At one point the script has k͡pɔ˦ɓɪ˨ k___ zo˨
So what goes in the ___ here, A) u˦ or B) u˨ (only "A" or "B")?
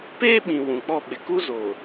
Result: A